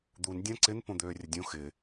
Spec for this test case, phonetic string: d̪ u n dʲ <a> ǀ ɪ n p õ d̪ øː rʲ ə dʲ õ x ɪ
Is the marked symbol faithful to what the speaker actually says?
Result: no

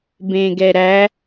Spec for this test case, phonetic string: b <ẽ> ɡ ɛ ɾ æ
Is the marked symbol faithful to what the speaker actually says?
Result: yes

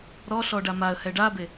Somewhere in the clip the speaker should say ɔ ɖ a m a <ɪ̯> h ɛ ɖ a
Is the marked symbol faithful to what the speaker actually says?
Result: no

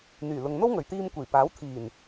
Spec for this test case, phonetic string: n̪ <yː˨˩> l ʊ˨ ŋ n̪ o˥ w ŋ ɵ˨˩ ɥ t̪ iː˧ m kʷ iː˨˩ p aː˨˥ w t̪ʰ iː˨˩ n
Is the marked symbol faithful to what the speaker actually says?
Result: yes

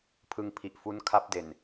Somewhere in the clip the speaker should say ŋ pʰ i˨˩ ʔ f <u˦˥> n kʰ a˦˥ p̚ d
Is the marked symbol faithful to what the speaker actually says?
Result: yes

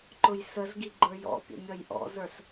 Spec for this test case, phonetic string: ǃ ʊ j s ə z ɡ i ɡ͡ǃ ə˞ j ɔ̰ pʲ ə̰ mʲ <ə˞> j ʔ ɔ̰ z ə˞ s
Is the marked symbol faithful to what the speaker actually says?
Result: no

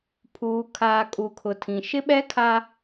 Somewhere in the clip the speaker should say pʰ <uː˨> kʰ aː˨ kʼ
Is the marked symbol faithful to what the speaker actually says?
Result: yes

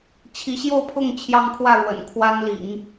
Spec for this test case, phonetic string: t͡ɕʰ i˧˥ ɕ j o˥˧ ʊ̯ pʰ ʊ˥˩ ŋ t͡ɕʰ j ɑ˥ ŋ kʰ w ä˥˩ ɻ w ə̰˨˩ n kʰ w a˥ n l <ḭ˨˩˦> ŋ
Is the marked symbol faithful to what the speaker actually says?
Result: yes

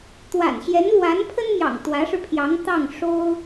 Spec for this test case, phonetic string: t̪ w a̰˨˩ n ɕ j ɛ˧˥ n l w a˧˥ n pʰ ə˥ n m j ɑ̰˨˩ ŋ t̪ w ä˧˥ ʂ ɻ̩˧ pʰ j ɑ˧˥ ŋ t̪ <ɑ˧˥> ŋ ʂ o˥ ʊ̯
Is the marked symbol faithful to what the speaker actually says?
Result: no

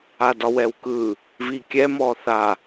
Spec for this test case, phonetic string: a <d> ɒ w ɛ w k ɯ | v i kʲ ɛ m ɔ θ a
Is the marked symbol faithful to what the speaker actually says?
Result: yes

